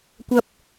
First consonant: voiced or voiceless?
voiceless